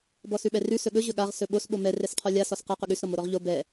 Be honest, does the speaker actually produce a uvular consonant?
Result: yes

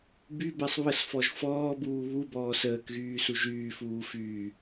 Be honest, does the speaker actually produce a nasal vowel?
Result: no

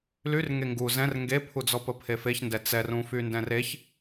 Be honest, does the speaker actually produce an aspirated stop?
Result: yes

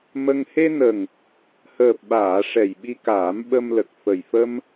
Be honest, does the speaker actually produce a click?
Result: no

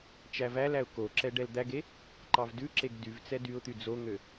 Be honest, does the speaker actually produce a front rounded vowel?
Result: yes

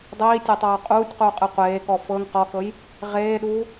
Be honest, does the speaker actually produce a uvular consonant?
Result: yes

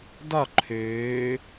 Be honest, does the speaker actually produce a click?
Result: yes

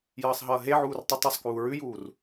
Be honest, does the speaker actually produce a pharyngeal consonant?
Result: yes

